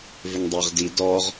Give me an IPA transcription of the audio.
vɪŋdˤiʁdi dɔʁ

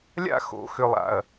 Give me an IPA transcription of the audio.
lʲa̰˦˨xo̰˨xʏ˨lˠa̰˨ɐ̯

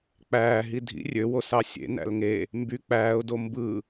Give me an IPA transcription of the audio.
k͡pæː ɦidʱḭ rʲøwosɑ sʲḛ næ̰lŋe | mby k͡pæːʊ̯ dombɯ

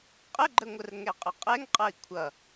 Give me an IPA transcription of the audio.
qʼəɡ͡ǃəŋʷər ŋɛqʼəqʼɛŋqʼʌi̯ kʷʰʌ

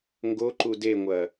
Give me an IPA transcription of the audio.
ŋɡoǃu deŋʷɐ

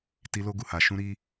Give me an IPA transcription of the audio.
ti˧lo˧ɡu˨ha˨ ʃũ˧ɾi˧

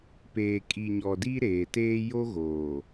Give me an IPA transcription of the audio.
peː˨kʼi˨ɲɔ˨ di˦ ɾeː˨teː˦ jo˦ɣoː˨

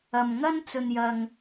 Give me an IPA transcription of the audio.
ɐ˨mŋɐ˥n t͡sɵ˧njɐ˧ŋ

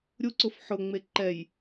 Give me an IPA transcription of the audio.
ɾʲuǀʊf ħʊŋ͡me ǃɛj

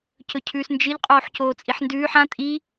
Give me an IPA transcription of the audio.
cɵcʰʉːsnd͡ʒɨʎ qʼoːħcoːt͡sʼiħndʉːħ ã tʼi

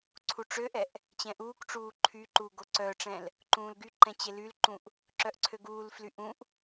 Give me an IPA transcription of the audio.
ǀʰuʈ͡ʂøʔɛʔ | t͡ɕɛ̃ʔuːkʈ͡ʂuː ǃʰyǃu ɡoǀœʈ͡ʂɛ̃l | ǃũːlɡyǃɛ̃ t͡ɕelylǃũʔ | ǁœʔǀʰøɡuːlfly ʔũʔ

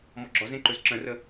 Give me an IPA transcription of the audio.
mɔɡ͡ǁɒzẽ ǃɵzǁə̃rə

